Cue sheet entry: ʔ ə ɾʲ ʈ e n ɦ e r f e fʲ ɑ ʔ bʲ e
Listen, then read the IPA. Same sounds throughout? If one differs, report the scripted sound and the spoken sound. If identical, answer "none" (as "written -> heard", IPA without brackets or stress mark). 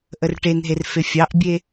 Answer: ɾʲ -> r